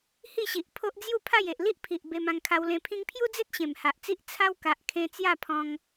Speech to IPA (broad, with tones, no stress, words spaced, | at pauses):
hi˥˧ɕi˨ʔ pʰo˦ʔd͡zju˥˧pʰa˥˧j e˨ʔli˦ʔ pʰi˨ʔ be˧mã˧ŋkʰa˧wlẽ˧ pʰĩ˧ŋpʰju˦d͡ze˦t̚ ɕẽ˨˩mha˨ʔt͡si˦ʔ t͡sʰa˦wka˨ʔ kʰẽ˧ t͡sja˥˧pʰɔ̃˧ŋ